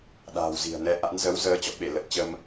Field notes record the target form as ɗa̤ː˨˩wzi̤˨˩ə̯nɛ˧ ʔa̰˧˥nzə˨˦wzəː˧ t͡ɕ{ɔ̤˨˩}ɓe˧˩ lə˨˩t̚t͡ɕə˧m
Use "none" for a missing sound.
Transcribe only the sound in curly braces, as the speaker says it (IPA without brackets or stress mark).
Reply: ɔ̰˧˨